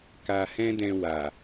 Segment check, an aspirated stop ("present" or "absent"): absent